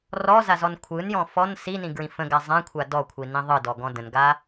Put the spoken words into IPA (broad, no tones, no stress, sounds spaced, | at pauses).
r ɔ z a z ɔ n kʷʰ ɯ n j ɔ̃ f ɔ n s i n ĩ ɡ ɹ ĩ f ə̃ ɡ a zˤ ã kʷʰ a d ɔ kʷʰ i n ĩ ðˤ ɯ d ɔ ɡ ɔ̃ d ə̃ n ɡ a